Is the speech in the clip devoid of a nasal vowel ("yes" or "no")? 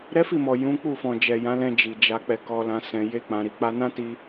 no